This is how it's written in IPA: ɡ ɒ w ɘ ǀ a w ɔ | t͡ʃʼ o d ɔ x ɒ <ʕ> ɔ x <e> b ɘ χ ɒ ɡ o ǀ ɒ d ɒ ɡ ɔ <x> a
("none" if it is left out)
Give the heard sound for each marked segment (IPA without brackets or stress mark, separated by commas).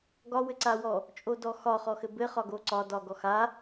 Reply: χ, ɘ, x